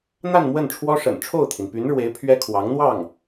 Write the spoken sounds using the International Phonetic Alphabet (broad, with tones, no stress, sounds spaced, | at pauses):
n̪ a˥˧ n m w ə˥˩ n ʈ͡ʂʰ w ɔ˥ ʂ ə̰˨˩ n ʈ͡ʂʰ o˥˩ ʊ̯ t̪ʰ i˩ n p y˧˥ n ɻ w e˧˥ ɪ̯ pʰ ɥ ɛ˥ kʰ w ɑ˧˥ ŋ n̪ w ɑ˥˩ ŋ